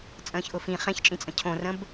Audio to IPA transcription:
t͡sʼ ə̃ː ç ʔ ʊ f ĩ χ ẽ ç t͡ʃʼ ĩ t͡sʼ ə̃ cʰ õ r ə̃ b

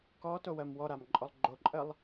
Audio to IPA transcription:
k ɔ t o w ɜ m w ɔ ɾ a m ǃʼ ɔ lˠ ɡ͡ǃ o ǃʼ ɜ lˠ

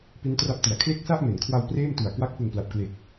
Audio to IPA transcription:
p i˦˥ n t r a˦˥ p̚ t i˨˩ a̯ kʰ l e˥˩ k̚ s a˥˩ ʔ m e˩˦ n kʰ w a˧ w p r eː˥˩ m t u˨˩ a̯ k w a˦˥ k̚ p ɯ˨˩ ŋ p l a˨˩ p̚ k l e˨˩ k̚

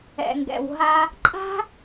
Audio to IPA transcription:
ɛ̰˨ ŋ ɡ ɛ̰˨ w ɦ a˦ | ǃʼ a̤˦

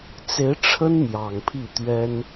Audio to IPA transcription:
t͡s e˧˥ ɪ̯ ʈ͡ʂʰ ə˥ n m j ɑ˨˩ ŋ pʰ i˥˩ t̪ ɥ ɛ˥ n

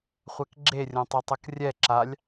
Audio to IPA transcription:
χʷ ɛ k ɡ͡ǁ e rʲ õ tˤ e tˤ ɤ k rʲ ɛ ǁ a lʲ

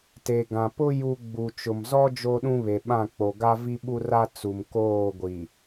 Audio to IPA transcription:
t e˨ ɡ ã˨ p ʊ˦ j u˦ ɡ͡b u˨ t͡ʃ ʊ˨ m z ɔ˦ d͡ʒ o˦ ɗ ũ˦ β e˨ ɓ ã˦˨ k͡p o˨ ɡ a˦ v i˦ ɓ u˦ r a˦ t͡s u˨ m k oː˦˨ ɡʷ i˨

